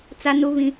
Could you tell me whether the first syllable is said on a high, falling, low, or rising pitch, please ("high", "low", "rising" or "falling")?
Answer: high